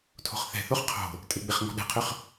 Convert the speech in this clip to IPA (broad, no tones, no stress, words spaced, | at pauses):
tʰo̤χθɛ̤θoχ qʰo̤ | tʼɪɡ͡bɪχ ŋɔ̤ɗɛ̤qʰʏχ